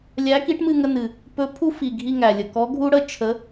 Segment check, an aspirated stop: present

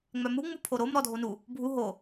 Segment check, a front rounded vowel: present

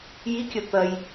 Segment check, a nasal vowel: absent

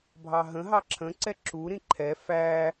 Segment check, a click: present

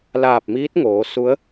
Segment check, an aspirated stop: absent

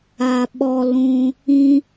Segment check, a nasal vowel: present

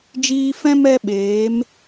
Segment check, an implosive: present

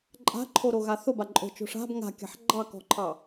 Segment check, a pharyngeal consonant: present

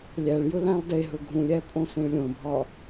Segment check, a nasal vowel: present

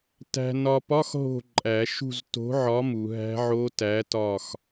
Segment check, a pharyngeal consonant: present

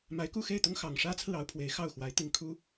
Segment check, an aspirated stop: present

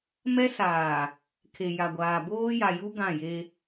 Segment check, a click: absent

